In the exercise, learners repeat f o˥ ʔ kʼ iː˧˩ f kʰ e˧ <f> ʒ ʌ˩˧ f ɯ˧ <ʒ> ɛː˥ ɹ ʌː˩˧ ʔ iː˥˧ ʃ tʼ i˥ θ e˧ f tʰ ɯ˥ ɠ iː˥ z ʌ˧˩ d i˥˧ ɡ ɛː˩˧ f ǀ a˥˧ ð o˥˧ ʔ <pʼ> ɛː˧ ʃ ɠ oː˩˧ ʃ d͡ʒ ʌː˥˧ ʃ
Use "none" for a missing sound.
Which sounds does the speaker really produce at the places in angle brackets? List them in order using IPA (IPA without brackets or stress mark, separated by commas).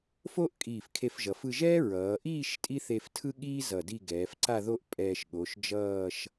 f, ʒ, pʼ